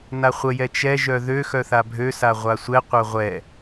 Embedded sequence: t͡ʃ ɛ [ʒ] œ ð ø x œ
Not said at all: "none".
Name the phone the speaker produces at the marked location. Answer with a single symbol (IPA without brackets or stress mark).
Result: ʒ